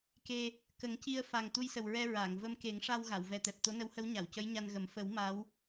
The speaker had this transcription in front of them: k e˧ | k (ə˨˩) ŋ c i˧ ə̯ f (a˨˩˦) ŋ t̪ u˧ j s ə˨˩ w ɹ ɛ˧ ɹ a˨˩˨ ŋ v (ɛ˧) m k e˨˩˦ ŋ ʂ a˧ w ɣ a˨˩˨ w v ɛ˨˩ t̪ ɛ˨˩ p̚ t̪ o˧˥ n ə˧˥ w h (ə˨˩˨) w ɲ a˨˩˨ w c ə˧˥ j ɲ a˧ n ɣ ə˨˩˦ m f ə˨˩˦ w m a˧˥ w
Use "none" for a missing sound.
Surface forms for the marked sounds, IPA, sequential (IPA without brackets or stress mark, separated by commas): ə˨˩˦, a˨˩, ə˧, ə˧˥